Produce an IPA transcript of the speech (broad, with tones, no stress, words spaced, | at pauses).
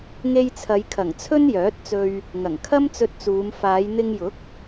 ŋe˧jt͡sʰɐ˨˧jkʰɐ˨˩ŋ t͡sʰɵ˥njœː˨˥t̚t͡sɵ˧ɥ | ŋɐ˨˩ŋkʰɐ˥mt͡sɵ˧t̚t͡suː˨˧m faː˨˧jn̪ɪ˧ŋjʊ˨˥k̚